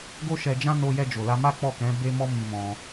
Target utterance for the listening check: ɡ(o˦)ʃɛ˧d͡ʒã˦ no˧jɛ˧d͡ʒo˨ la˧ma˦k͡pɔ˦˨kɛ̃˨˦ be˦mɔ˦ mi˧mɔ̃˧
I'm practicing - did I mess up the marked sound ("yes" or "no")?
no